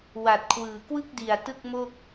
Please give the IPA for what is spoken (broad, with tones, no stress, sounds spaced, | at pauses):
w a˨˩ t̚ kʰ w ɯː˨˩ k w ɯ˥˩ k̚ d i˨˩ a̯ t ɯ˥˩ k̚ m o˥˩ k̚